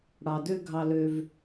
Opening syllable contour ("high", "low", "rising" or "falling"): low